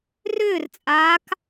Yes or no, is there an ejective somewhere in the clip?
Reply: yes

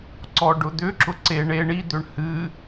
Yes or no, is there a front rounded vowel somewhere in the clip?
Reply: yes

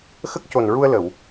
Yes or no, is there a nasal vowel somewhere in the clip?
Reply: no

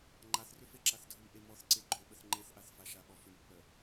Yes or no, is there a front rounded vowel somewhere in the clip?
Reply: yes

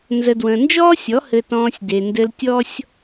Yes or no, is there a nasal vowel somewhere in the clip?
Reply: yes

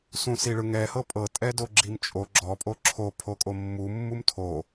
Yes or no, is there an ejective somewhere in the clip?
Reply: yes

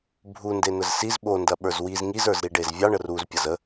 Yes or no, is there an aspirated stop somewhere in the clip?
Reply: no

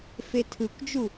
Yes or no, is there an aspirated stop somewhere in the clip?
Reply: yes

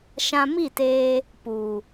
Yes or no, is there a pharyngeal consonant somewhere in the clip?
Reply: no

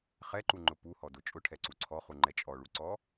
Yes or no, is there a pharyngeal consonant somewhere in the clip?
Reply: no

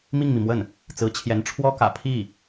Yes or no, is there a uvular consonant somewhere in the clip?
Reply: no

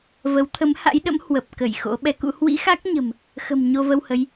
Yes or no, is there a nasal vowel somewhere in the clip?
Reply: no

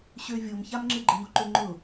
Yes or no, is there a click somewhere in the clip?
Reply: yes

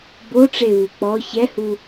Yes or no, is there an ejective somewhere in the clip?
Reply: no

